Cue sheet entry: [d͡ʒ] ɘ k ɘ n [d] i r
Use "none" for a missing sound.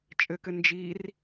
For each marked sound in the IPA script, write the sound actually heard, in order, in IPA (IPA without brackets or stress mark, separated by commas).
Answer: t͡ʃʼ, d͡ʒ